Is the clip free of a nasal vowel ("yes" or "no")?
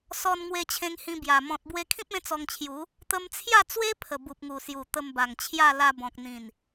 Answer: no